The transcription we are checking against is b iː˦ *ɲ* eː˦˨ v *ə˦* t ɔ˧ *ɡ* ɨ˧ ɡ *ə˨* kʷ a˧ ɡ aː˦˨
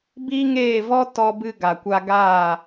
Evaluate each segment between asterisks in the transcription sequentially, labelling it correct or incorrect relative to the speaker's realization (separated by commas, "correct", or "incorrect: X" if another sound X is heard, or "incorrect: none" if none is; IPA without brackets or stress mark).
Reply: incorrect: ŋ, incorrect: ɔ˦, incorrect: b, incorrect: a˨